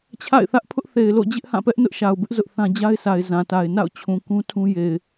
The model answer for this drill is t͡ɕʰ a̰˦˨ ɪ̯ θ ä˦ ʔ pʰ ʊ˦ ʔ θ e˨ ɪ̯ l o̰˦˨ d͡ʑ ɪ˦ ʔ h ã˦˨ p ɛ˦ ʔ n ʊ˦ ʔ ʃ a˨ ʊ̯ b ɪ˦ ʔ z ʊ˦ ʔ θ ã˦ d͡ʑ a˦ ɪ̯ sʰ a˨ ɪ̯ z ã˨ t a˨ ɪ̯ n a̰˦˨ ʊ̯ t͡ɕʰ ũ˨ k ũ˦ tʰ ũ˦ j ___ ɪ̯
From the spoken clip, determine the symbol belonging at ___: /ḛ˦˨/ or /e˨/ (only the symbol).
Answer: e˨